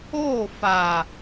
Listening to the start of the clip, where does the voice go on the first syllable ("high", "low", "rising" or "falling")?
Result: falling